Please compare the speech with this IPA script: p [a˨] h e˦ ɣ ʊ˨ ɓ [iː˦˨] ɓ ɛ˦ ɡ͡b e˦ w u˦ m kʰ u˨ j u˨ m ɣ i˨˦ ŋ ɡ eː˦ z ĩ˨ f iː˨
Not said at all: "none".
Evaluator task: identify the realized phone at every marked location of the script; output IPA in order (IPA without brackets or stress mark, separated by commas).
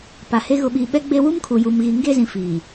a˨, iː˨